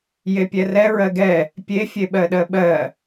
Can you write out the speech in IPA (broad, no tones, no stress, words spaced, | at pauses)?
jepʲɛrɛ ɹɜɡɛ | pʲe fʲeɓɜɗɜɓɜ